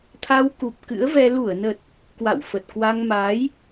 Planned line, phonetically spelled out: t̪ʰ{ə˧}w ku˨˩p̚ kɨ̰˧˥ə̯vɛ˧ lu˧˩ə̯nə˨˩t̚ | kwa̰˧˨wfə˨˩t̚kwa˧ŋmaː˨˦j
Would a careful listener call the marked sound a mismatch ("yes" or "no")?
yes